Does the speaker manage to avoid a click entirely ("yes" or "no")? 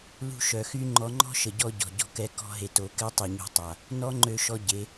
no